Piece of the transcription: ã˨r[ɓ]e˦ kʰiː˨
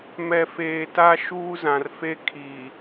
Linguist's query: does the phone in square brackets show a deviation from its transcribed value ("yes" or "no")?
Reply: yes